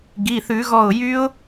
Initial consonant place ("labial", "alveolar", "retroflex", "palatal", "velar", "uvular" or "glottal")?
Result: velar